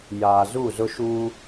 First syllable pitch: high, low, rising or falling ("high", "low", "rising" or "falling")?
low